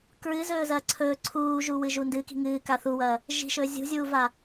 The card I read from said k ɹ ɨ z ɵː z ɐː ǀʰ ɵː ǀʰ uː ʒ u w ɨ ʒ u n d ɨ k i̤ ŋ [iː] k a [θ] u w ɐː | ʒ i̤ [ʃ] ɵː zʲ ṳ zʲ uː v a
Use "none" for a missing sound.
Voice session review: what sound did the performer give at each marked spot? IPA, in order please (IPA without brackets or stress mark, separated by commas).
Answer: ɨː, θ, ʃ